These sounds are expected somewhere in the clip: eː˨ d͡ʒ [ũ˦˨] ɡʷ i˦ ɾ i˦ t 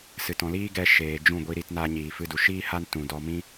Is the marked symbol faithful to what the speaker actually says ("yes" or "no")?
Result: yes